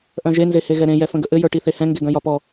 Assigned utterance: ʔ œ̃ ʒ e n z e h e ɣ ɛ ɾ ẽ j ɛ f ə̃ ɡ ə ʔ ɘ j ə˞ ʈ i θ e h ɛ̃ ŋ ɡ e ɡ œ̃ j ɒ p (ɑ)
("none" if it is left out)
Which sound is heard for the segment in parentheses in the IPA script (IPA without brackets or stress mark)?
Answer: ɔ